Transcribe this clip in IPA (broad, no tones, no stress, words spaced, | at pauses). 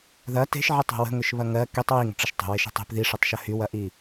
ðɐ te̤ʃʕitˤe̤ wə̤ŋʏʃβɐ ŋɜ ketˤ wiŋə̤ʈ͡ʂəʃ tˤə̤weʃi̤tˤ e̤p ðiʂətˤʃɐ hywɐʔi